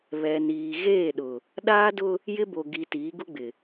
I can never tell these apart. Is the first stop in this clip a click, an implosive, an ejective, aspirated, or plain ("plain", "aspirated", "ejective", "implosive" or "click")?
implosive